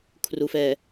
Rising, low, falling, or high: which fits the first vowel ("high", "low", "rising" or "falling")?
low